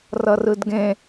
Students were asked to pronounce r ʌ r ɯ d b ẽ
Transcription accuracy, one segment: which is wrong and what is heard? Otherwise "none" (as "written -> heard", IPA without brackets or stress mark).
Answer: b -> ɡ